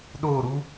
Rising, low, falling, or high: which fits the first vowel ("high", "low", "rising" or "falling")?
falling